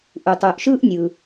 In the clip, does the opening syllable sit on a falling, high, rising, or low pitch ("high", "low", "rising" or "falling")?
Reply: low